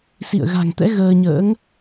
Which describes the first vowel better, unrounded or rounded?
unrounded